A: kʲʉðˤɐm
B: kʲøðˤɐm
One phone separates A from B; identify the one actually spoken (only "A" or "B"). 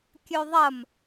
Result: B